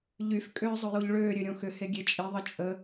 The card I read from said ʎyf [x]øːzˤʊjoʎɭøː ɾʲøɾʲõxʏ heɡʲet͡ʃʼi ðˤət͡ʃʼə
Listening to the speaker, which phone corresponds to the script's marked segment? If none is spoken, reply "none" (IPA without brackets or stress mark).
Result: kʼ